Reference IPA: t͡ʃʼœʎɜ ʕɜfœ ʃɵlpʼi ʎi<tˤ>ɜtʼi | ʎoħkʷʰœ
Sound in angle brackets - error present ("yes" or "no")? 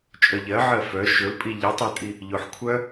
no